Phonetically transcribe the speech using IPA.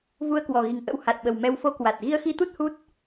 v u˧ ə̯ k w ɔ˨˩ ɣ i˨˩ ŋ ʔ ə̰˧˥ w h a˨˩ t̚ ɓ ə˨˩ w m ɛ˧ w f o˧ k w a˨˩ t̚ ɣ i˧ ə̯ x i˧ t̪ u˦˥ t̚ h u˦˥ t̚

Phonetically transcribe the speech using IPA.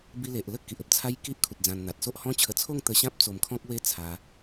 b i˧ l e˨ ʔ l ə˥˧ k i˨ ʔ ə˦ p̚ t͡sʰ a˦ j k i˦ ʔ kʰ u˨ t̚ d͡z ã˧ n n̪ a˨ t̚ s o˦ ʔ h ɔ̃˦ t͡ɕʰ ə˧ t͡sʰ o˥˧ ŋ t̪ ə˧ ɕ ã˦ p̚ t͡s o˧ m kʰ ɔ̃˦ k̚ w e˦ t͡sʰ a˧

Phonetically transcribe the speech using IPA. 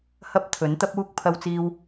h ɐ˥ p̚ t̪ʰ ɵ˨˥ n t̪ ɐ˥ p̚ uː˥ k̚ pʰ ɐ˧ w t͡s iː˧ w

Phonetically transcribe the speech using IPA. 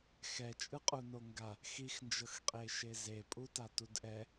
x ɛ t͡ʃʼ ɯ qʼ u n o ŋ ɡ a | x i x n d͡ʒ ɤ x qʼ e ʃ e z e pʼ u t a t u d ʔ ɛ

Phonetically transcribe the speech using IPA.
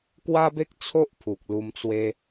k w a˦ b e˦ k̚ t͡sʰ o˦ ʔ pʰ u˨ k̚ l u˧ m t͡s w e˦

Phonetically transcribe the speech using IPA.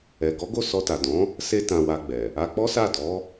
ɛ˨ ɡ ɔ˨˦ ɡ o˦˨ s ɔ˧ t a˨ d ɔ̃˨˦ | s e˦ t ã˧ w a˧ ɡ͡b ɛ˨ | a˧ k͡p ɔ˦ s a˦˨ d ɔ˨˦

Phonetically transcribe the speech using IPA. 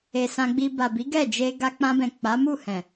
e˨ s ã˧ ɡ͡b i˧ b a˨ b i˨˦ ɡ ɛ˦˨ d͡ʒ e˧ ɡ a˧ k͡p ã˧ b ɛ̃˨ k͡p a˨˦ m u˦˨ h ɛ̃˨

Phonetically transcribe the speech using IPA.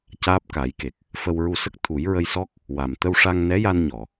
c aː˦˥ p̚ k a˨˩˦ j k e˨˩ k̚ | f ə˧ w ɹ u˧ s ə˦˥ k̚ t̪ʰ u˨˩˦ j ɹ ə˧ j s ɔ˦˥ k̚ | w a˨˩ m t̪ ə˧ w ʂ a˧ ŋ n ɛ˧˥ j a˧ n ɲ ɔ˨˩˨

